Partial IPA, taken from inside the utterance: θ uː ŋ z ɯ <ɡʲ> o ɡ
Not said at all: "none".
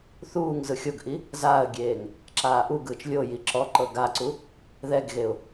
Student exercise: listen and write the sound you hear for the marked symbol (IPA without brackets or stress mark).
xʲ